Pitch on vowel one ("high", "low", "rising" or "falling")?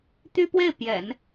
high